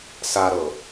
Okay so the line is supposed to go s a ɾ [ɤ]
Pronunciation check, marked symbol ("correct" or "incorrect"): correct